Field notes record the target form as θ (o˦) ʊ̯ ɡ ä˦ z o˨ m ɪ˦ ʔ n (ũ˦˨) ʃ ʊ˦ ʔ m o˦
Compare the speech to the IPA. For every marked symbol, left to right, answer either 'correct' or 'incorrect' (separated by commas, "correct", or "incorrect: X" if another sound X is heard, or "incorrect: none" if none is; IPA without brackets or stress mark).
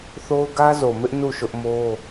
correct, incorrect: u˦˨